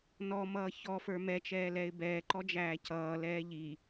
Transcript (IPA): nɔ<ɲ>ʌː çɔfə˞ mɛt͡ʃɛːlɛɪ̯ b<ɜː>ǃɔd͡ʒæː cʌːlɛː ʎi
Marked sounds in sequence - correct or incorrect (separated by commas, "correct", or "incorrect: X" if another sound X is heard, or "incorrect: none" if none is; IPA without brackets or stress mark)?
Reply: incorrect: m, incorrect: ɛː